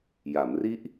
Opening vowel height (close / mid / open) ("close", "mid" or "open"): open